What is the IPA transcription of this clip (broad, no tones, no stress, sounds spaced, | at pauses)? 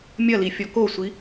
mʲ ɐ l i fʲ ɔ k o sʷ i